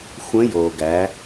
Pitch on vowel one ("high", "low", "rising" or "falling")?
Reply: rising